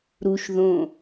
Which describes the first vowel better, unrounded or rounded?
rounded